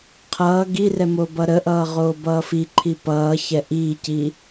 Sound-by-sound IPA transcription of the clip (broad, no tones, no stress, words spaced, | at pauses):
qʰʌː ɡirɛ mobʌɾəʔʌː ʁoːbʌːfiǃʰi pʌːçɛ ʔiːciː